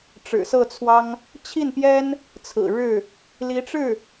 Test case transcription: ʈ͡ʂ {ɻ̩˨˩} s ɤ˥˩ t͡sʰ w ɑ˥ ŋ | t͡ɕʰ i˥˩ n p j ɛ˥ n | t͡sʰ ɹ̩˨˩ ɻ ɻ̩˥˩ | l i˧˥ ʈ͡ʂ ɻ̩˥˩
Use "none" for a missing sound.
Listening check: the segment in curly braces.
ɻ̩˨˩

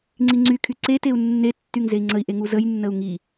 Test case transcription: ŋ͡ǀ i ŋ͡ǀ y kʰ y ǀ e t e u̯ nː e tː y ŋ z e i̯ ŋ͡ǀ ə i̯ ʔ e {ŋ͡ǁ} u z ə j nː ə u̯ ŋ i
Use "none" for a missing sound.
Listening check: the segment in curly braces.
ŋ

